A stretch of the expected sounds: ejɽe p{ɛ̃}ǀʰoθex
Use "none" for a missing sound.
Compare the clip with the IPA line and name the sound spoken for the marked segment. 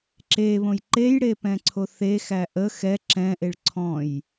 ɛ̃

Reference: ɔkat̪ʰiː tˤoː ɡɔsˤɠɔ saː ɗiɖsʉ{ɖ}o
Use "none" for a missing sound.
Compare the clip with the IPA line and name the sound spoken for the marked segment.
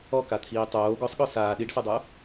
dˤ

